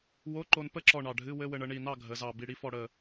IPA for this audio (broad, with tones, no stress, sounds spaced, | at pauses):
w o˧˥˧ ǃ o˧ n p ə˥˨ ǁ ɔ˧˩ ɳ ɑ˧˩ ɖʱ ɨ˧˥˧ w ɘ˧˥˧ w ɘ˧ ɳ ə˩˧ ɳ i˧˩ n ɑ˥˨ ɡʱ ə˩˧ z ɑ˧˩ b i˧˩ ɽ i˧ f ɔ˧˩ ɽ ə˧˩